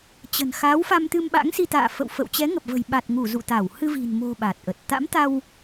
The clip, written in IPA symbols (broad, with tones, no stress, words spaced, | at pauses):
t͡ɕə̤˨˩nxa˨˦wfa˧m t̪ɨ˧mɓa̰˧˥ŋsi˧ t̪a̰ː˧˨fə̰˧˨w fə̰˧˨w t͡ɕɛ˨˦ŋə˨˩p̚və̤˨˩j ɓa˨˩t̚ŋu˧˩ zṵ˧˨t̪a˧˩w hɨ˧vi̤˨˩nmo̤˨˩ ɓa˨˩t̚ʔə˨˩t̚ t̪a̰˧˥mt̪a˧w